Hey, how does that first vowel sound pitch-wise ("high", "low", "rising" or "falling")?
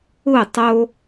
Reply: falling